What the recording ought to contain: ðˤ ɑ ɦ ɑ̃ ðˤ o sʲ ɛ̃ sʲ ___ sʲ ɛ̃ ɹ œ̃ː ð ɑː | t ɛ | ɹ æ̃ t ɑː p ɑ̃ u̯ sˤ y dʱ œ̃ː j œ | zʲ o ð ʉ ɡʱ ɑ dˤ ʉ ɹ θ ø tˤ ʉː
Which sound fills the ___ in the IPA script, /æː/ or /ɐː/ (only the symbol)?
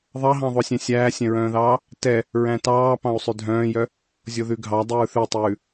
æː